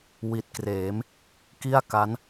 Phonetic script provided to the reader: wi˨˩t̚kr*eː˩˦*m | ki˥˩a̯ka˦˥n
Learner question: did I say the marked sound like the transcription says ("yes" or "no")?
yes